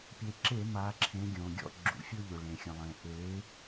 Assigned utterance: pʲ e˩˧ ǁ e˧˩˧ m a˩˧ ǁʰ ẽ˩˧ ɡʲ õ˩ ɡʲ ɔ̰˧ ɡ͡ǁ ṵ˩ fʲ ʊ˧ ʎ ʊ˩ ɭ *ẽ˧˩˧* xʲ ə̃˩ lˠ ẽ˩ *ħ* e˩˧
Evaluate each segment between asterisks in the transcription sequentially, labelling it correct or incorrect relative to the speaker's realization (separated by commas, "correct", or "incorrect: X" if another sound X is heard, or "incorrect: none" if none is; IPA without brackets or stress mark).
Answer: incorrect: ẽ˩, incorrect: ʔ